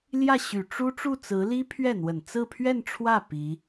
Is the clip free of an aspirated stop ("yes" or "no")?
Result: no